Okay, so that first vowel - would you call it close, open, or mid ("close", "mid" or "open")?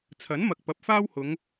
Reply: open